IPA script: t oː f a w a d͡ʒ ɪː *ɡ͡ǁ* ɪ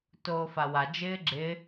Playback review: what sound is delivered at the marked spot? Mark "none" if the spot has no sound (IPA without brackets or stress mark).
ɡ͡ǁ